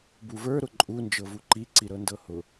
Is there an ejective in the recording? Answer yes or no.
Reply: yes